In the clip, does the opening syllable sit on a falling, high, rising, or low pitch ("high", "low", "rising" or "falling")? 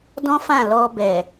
high